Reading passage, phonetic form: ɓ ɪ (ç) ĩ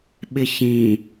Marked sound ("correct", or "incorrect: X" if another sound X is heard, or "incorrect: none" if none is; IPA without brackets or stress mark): correct